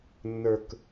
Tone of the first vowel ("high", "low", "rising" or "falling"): low